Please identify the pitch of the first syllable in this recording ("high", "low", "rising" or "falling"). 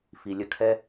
low